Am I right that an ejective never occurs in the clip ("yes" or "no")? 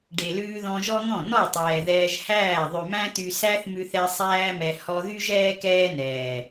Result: yes